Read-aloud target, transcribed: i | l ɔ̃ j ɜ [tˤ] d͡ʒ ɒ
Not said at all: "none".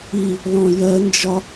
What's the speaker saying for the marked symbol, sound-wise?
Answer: n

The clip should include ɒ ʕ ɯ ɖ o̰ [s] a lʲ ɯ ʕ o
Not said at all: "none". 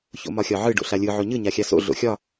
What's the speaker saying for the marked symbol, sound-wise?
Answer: ɬ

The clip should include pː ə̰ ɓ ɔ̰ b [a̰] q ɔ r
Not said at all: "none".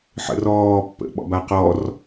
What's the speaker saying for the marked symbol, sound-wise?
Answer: a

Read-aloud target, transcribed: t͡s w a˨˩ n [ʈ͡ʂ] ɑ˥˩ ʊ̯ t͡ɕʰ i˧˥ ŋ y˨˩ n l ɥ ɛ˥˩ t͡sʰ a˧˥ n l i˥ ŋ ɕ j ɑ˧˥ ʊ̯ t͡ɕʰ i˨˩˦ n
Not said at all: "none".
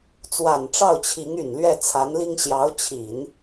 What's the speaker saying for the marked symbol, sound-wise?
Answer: ʈ͡ʂ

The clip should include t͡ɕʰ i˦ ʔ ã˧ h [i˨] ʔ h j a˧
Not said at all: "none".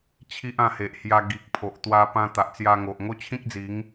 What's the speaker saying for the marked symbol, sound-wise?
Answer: e˨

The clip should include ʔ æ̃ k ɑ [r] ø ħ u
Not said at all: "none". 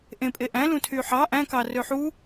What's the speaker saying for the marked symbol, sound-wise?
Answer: r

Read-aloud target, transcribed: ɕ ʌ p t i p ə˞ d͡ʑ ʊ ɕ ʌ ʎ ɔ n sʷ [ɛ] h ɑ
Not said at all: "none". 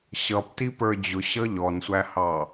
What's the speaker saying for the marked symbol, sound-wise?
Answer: æ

